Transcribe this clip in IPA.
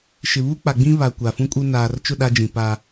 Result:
ʃ ɪ˨ β u˦ k͡p a˨ ɡ͡b ĩ˦ β a˨ kʷ a˨ f ũ˦ kʼ u˦ n aː˨ r t͡ʃ ʊ˦˨ ɗ a˦ d͡ʒ ĩ˨ p a˦

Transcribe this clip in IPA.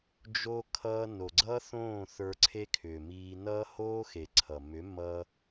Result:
d͡ʒ o˧ kʰ ʌː˧ n o˨ ɡ͡ǀ ʌː˦ θ õː˦˨ θ ə˞˧ ǀʰ e˦ kʰ ʏː˨ m iː˧ n ʌː˦ h oː˦ x e˨ ǀʰ ʌ˨ m ʏ˨˦ m ʌ˧

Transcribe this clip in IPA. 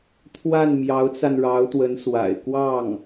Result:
t̪ʰ w a˥˩ n m j ɑ˧˥ ʊ̯ t͡s a˧ n ɻ ɑ˧˥ ʊ̯ t̪ w ə˧˥ n s w a̰˨˩ ɪ̯ k w ɑ˥˩ ŋ

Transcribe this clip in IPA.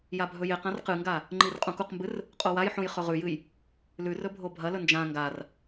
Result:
j a bʱ ɵ j e q ã r q ɨ ŋ ɡ a | ŋ͡ǃ i r qʼ ũ k u q m b ɨ r | qʼ o w a j ħ ũ j χ ɵ ʁ ʉ j ɨ j | l ʉ r ɵ bʱ o bʱ ɐ l ɵ n d͡ʒ ã ŋ ɡ a r

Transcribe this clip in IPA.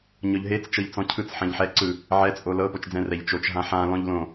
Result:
ɲ ɔ ʎ ɦ e t͡s t͡ʃ ɤ ʎ t͡s ɔ̃ cʰ ɯ t͡s ħ ɛ̃ ʎ ħ ɛ ǀ ɯ | ʕ ɛ t͡sʼ o l ɤ p o t͡ʃ d͡z ɛ̃ r ɛ ʎ t͡ʃ o t͡ʃ ɦ ã ħ ã l ɔ̃ ʎ l õ

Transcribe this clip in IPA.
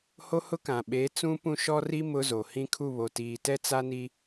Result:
h o˦ h ʊ˦ k ã˨ ɓ eː˨˦ t͡s ũ˦ p ũ˦ ʃ ɔ˦ r i˦ m ʊ˦ z o˨ h ĩ˦ kʰ u˦˨ β o˨ t iː˨ t ɛ˦ t͡s a˦ n i˦

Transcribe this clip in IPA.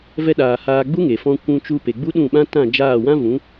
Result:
v ɛ˧ ɗ aː˨ h aː˧ ɡ͡b u˦ ŋ e˨ f ɔ̃˧ kʷ ũ˧ t͡ʃ u˧ p e˨ ɡ͡b u˦ ɗ ũ˦˨ ɓ ã˦ t ã˦˨ d͡ʒ aː˦˨ w ã˦ v ũ˨˦

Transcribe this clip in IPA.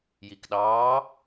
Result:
j i k ɗ ɑː

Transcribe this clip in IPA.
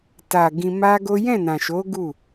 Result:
t a˨ ɡ ĩ˧ m a˦ ɡ o˦ j ɛ̃˦˨ n ã˨ ʃ o˨˦ ɡ u˦˨

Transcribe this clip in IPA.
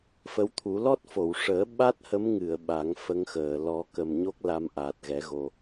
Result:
f ə˧˥ w t̪ʰ u˨˩˦ l ɔ˦˥ t̚ f o˨˩˨ w ʂ əː˨˩˦ ɓ a˦˥ t̚ h ə˧˥ m ŋ ɨ˨˩˨ ə̯ ɓ a˨˩˦ ŋ f ə˧˥ ŋ x əː˨˩˨ l ɔ˨˩˦ k ə˨˩ m ɲ o˦˥ k̚ l a˧˥ m ʔ aː˨˩ t̚ ɣ ɛ˨˩˦ ɣ o˧

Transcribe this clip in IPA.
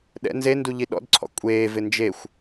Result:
ɗ ɛ̰ n z e n d u ʎ i ɗ ɔ̰ d ǀʰ ɔ̰ kʷʼ eː v ɪ n d͡ʒ e xʷ

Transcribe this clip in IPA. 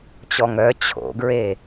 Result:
t͡ɕ ɔ ŋ œ t͡ɕʰ o̰ ɡ ɹ e

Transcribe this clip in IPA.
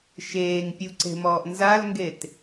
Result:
ʃ eː ŋ pʲ u ǀ e̤ m ɔː ʔ n z a l ŋ ɡ e t

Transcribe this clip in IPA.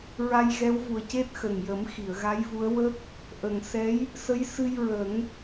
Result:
ɹ a˧ j ɣ ɛ˧˥ w v u˨˩ ə̯ c e˦˥ t̚ x ə˨˩ ŋ j ə˨˩˦ m x i˨˩˨ ə̯ ɣ a˧˥ j v u˧˥ ə̯ w ə˦˥ k̚ | ʔ ə˨˩ ŋ s ɛ˧˥ j | s ə˧˥ j s ɨ˧ j ɹ ə˨˩˦ ŋ

